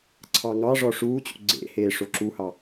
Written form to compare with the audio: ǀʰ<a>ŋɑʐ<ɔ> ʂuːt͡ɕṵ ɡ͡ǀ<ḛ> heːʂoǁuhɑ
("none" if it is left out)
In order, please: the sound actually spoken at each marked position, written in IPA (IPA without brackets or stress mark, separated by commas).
ɑ, ɔ, ḛ